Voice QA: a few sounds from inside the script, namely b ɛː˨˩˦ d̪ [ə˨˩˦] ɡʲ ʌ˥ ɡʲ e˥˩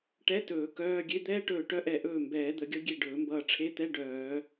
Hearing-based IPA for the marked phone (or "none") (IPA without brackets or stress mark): ə˨˩˦